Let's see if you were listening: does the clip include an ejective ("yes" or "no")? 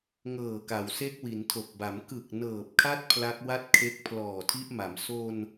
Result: no